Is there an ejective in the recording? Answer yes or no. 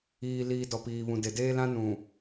no